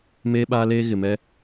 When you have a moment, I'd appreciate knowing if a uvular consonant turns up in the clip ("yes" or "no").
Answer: no